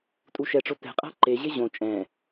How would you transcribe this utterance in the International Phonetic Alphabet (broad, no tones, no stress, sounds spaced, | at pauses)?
tʼ u ʃ ɛ ʈ͡ʂ o t ɛ̤ qʼ a̤ ǃ e ʑ e ʑ õ t͡ʃʼ ɛ̃